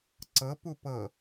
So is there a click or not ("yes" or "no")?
yes